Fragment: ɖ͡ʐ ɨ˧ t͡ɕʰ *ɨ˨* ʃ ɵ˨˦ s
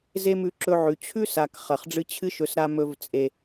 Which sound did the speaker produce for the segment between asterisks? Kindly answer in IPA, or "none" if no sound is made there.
ɨ˦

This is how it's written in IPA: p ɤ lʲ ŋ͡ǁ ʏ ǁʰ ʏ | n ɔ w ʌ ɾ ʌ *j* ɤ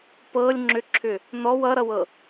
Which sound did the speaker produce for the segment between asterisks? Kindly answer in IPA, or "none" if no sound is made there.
w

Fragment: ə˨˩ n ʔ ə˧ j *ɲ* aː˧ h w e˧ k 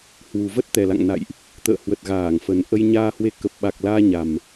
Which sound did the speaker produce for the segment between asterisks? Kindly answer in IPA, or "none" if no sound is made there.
ɲ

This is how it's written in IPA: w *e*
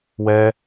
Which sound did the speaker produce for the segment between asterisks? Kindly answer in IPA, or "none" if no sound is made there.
ɛ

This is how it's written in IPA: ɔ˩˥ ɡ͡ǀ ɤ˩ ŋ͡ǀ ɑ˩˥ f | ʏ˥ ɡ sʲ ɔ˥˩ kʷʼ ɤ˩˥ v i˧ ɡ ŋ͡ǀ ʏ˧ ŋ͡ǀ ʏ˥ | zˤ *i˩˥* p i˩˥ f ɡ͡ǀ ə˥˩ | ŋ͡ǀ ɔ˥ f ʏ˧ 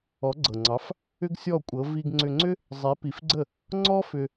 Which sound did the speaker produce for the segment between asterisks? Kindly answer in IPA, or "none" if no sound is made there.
i˩˥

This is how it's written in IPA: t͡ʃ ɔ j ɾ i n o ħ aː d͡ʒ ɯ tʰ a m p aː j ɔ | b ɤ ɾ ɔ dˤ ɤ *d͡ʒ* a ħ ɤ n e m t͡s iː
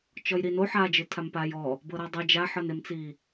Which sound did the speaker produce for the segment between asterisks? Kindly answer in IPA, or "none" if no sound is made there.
d͡ʒ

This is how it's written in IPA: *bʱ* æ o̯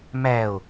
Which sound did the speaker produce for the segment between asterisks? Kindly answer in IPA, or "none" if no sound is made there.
m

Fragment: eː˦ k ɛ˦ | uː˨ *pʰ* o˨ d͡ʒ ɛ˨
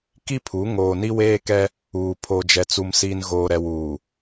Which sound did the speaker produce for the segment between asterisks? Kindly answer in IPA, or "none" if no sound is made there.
pʰ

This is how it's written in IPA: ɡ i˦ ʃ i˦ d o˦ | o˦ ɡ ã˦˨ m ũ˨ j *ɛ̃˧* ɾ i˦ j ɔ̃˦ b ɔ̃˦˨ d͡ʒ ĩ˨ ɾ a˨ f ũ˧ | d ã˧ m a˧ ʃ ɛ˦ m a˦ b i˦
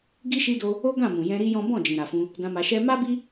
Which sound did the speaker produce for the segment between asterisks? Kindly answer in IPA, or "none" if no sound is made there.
ɛ̃˧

